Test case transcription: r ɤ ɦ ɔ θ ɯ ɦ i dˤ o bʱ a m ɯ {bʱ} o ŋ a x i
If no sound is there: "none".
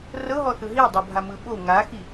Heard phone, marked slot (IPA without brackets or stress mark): ɓ